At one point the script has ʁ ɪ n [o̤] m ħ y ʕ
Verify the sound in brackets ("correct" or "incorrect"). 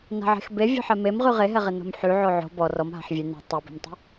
correct